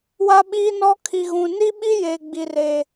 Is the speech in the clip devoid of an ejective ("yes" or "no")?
yes